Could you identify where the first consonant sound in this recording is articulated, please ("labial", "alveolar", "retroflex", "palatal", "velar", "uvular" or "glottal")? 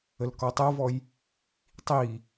alveolar